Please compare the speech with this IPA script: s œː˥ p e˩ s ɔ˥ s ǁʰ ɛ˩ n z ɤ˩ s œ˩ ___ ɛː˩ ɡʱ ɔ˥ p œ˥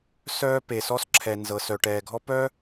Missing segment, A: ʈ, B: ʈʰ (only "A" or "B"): A